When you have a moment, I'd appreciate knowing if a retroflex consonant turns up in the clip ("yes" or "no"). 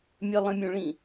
yes